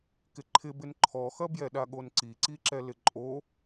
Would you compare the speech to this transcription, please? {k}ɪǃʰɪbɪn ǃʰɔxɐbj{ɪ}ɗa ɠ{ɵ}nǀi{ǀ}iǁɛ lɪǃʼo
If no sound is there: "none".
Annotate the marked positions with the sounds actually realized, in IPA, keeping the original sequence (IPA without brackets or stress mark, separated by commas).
k, ɛ, o, ǀ